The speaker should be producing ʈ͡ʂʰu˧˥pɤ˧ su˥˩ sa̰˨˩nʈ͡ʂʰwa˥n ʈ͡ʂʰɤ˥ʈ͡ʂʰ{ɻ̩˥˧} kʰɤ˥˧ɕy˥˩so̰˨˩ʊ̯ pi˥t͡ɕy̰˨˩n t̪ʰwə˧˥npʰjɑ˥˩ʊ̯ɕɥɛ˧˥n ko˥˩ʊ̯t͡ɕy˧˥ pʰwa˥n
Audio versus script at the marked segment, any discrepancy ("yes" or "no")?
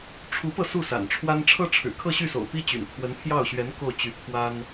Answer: yes